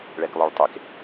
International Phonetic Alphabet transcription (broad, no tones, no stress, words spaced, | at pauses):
ɭɛklˠœɭtˤek